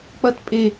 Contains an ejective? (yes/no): yes